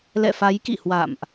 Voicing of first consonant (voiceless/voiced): voiced